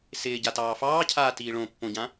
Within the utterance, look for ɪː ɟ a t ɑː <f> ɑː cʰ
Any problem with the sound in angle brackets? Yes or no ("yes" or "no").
no